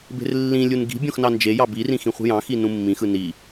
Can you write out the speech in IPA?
b e̤ r lː ĩ lʲ u n ɡ i̤ bʲ õ x n ɑ n d͡ʒ e j ɑ b i r ĩ x ĩ χʷ i̤ j ɑ̃ x i n ũ mː ĩ x ɯ n i

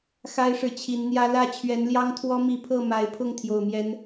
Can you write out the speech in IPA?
x a˦ ɪ̯ ʂ ɻ̩˨ t͡ɕʰ i˨˦ n n̪ j ä˦ l ä˥˨ t͡ɕʰ ɥ ɛ˨˦ n l j ɑ˦ ŋ t̪ʰ w ɔ˦ m i˨˦ pʰ ɤ˥˨ m a˨˦ ɪ̯ pʰ ʊ˥˨ ŋ t̪ʰ j o˨˩ ʊ̯ m j ɛ˨˦ n

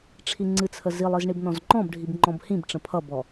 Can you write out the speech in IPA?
ʈ͡ʂʰ i ŋ͡ǀ ɨ t͡sʰ ə z i lˠ ɨ z ɳ i b n ɔ̃ z ŋ͡ǃ ɔ̃ b ɖʱ i b ŋ͡ǃ ɔ̃ b h ĩ b ʈ͡ʂ ə̃ pʰ ʌ b ɔ

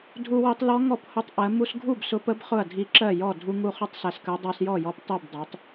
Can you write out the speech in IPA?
dʱ u˧ w i˧ tˤ l ɔ˧˥ ŋ ɔ˥˩ p h ʊ˧˥ tˤ ʔ ɜ˩˧ m u˧ s ɡʱ u˥˩ b s ʊ˧˥ p ə˧˥ b χ ʊ˥˩ ɐ̯ dʱ i˧ ǁ ɜ˥˩ j ɔ˥˩ dʱ u˧ ŋ u˧ χ ʊ˧˥ tˤ s æ˧ s k ɜ˧˥ dˤ ɜ˧ s j ɔ˥˩ j ɔ˧ p tˤ i˥˩ b dˤ i˩˧ tˤ

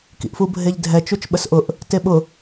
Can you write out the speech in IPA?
k ḭ ʔ f u bʱ e ʎ dʱ ɛ t͡ʃ u t͡ʃ ɓ ə s ʔ ʊ ʔ | t e ɓ ʊ

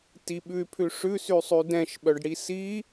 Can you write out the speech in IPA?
t i ɓ ʉ y̯ pʰ ʉ ʂ ʉ s y sˤ y d ɛ̃ ʃ ɓ œ ɖ ɽ i s i

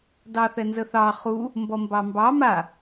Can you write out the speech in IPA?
d ɑ θ ɛ n z ə θ ɑ χ u | m b ɔ m b ɑ m b ɑ m a

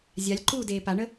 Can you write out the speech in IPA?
zʲ a lʲ ǃ uː d eː p a ɳ ə

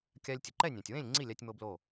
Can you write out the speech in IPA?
kʲ a˧ lʲ tʲ ʊ˩ ǃ ɛ˥˨ nʲ ɛ̃˩ tʲ w ẽ˥˨ lʲ ŋ͡ǀ i˥˨ lʲ a˧ tʲ m o˧ b l o˧˩

